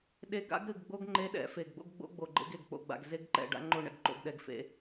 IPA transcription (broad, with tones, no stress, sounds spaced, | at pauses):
ɗ e˦ ɡ a̰˦ ɡ ɾ ɨ˨ ɡ ɡ͡b o˦ ɡ ŋ͡ǃ e˦ ɗ ɛ̰˨˦ f e˨ ɡ ɡ͡b o̰˦ ɡ ɡ͡b o̰˦ ɡ͡b o˨ ɡ͡ǃ ḛ˦ ɡ e˨ ɡ k͡p o̰˦˨ ɡ͡b a̰˨ ɡ z e˦ ɡ ǃ ɛ̰˨ ɖ a̰˦ ŋ͡ǃ o˦˨ ɳ ɛ̰˨ ɡ ǃ o̰˨ ɡ ɗ ɛ˨ ɡ f ḛ˦